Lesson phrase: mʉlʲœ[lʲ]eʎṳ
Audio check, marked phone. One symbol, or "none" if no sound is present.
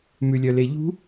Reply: l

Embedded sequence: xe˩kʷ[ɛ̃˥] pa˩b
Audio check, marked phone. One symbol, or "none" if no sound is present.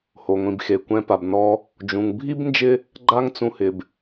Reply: ɛ̃˨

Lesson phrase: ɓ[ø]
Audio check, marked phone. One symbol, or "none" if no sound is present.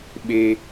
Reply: e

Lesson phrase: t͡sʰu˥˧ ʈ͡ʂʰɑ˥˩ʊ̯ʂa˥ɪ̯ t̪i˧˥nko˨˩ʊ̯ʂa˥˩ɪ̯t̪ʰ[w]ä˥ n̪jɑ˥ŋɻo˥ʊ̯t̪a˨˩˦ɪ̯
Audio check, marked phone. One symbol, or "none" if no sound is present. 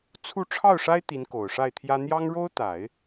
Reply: j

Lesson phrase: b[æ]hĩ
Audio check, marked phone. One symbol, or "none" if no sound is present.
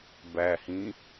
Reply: æ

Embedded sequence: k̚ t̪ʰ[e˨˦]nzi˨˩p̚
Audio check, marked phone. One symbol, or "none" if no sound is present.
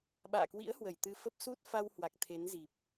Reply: e˨˦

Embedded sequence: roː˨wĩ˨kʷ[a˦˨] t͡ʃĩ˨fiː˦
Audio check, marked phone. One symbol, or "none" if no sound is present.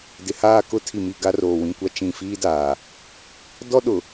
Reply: a˦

